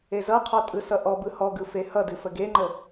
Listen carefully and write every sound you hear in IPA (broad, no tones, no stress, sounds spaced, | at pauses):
e z ʌ qʰ ɔ tʼ ɯ s ʌ ʔ ɔ b ɯ h ɔ ɡ ɯ f e h ʌ d ɨ f ə ɡ e ŋ͡ǃ ə